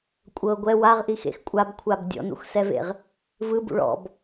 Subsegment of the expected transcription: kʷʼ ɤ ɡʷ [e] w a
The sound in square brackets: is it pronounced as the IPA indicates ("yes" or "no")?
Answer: no